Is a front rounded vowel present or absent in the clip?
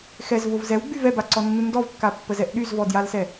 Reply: present